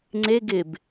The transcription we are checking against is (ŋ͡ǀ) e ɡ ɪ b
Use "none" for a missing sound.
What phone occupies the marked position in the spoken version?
ŋ͡ǀ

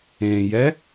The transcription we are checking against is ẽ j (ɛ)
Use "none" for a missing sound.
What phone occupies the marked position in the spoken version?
ɛ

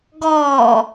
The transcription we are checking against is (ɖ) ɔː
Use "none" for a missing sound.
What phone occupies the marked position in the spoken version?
ɡ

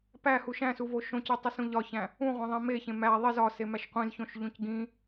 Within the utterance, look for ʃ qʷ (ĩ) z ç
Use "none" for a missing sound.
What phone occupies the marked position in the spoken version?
ĩ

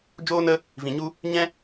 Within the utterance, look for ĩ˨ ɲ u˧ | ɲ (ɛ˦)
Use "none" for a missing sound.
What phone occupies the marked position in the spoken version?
ɛ̃˦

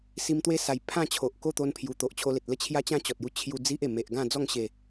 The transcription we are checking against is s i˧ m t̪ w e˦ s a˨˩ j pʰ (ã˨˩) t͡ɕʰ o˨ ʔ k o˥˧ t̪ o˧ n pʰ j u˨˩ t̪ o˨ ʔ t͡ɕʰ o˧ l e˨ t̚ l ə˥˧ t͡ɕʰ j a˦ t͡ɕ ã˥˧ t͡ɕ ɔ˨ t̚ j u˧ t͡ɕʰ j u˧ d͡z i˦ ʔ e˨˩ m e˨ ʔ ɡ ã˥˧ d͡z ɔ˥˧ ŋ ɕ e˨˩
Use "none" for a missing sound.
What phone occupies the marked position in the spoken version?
ã˥˧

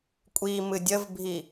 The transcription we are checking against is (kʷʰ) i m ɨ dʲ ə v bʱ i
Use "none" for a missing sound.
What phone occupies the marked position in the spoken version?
kʷʼ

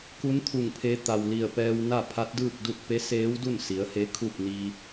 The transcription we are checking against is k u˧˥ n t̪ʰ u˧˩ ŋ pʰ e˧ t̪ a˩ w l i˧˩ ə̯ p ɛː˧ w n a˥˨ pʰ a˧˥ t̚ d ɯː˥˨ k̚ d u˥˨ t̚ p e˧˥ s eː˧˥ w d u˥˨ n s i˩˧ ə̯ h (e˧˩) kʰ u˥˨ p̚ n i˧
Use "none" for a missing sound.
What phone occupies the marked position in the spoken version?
e˧˥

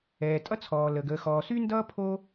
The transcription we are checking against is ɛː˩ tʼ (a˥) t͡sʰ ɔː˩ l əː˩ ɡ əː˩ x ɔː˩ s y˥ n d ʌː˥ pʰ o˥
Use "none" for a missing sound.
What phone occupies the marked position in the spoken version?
ʌ˥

